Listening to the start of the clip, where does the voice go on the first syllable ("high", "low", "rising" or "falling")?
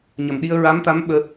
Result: low